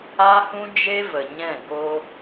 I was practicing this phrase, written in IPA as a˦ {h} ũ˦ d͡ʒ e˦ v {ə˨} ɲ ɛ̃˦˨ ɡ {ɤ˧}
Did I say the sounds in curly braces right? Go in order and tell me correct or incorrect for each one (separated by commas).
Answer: correct, correct, incorrect